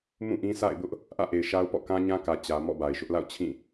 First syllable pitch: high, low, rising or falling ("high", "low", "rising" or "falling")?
falling